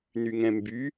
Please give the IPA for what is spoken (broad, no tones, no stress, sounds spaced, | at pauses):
n y ŋ ɛ̃ m b y